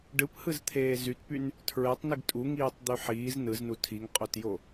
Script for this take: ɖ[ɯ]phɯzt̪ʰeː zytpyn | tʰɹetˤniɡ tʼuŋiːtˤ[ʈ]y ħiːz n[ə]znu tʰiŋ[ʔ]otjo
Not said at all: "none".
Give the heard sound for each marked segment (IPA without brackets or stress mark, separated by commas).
ɯ, d̪, ɯ, qʼ